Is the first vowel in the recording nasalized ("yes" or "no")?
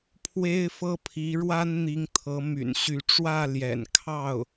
no